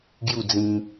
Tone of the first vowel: falling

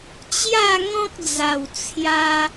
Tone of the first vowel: falling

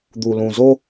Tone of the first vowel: low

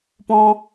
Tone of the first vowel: high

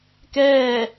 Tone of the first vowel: falling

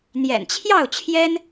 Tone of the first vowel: low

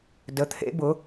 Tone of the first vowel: rising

